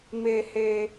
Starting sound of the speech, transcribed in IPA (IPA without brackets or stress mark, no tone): m